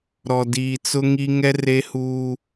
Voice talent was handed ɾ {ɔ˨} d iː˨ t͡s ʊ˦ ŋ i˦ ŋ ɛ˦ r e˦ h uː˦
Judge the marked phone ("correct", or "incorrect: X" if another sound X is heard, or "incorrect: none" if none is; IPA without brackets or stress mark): correct